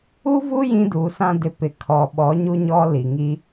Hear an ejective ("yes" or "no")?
no